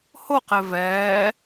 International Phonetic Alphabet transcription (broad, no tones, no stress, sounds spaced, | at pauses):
h o q e v ɛː